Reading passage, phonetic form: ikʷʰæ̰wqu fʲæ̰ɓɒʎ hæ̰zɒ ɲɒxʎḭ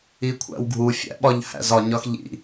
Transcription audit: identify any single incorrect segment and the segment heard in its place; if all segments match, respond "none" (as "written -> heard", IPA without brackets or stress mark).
q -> ɡʱ